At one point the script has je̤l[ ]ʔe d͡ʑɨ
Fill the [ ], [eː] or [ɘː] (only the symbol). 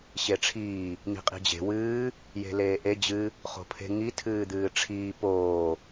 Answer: eː